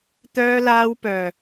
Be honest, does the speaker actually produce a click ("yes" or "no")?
no